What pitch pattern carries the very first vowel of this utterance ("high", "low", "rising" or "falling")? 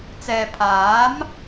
low